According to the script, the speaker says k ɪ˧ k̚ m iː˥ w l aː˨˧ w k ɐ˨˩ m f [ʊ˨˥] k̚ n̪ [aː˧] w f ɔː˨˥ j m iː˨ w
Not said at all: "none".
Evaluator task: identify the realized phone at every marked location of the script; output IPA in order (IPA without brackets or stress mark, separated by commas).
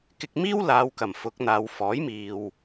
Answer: ʊ˨˥, aː˨˧